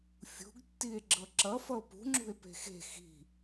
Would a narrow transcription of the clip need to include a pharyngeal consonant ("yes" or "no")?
no